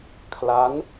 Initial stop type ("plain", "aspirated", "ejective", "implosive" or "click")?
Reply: aspirated